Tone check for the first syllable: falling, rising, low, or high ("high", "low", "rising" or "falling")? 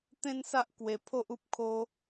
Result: high